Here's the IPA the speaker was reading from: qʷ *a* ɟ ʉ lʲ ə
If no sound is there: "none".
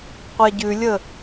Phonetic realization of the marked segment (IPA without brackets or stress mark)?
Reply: a